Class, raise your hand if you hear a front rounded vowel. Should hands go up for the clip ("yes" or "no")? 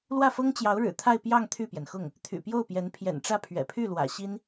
yes